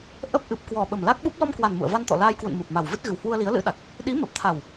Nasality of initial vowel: oral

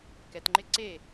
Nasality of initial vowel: oral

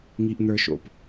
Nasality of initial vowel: oral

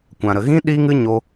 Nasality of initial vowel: nasal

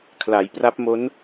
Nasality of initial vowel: oral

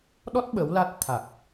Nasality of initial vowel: oral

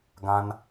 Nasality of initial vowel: nasal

